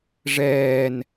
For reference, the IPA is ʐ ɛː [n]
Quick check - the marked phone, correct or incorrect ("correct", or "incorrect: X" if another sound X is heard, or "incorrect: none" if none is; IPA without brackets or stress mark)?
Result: correct